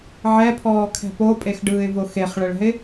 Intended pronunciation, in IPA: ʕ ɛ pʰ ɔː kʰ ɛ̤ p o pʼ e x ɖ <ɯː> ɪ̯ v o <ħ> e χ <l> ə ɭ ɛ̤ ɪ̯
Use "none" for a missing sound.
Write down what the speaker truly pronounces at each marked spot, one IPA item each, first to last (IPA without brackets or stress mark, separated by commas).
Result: ɯː, x, ɭ